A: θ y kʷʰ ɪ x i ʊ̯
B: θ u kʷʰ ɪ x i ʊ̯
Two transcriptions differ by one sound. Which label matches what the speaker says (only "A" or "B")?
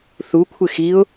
B